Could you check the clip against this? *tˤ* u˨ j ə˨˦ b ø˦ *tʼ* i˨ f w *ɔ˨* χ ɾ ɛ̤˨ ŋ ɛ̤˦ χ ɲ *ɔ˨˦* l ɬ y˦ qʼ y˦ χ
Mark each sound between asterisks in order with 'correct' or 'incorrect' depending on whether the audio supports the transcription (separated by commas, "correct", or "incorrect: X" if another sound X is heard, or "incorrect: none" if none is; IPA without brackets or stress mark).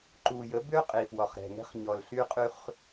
incorrect: ǃ, incorrect: qʼ, correct, incorrect: ɔ˨